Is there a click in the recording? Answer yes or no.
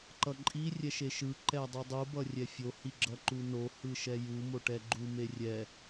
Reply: yes